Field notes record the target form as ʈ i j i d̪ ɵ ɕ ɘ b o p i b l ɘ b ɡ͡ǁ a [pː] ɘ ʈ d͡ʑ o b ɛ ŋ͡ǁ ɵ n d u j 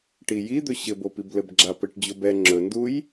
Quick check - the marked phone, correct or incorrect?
incorrect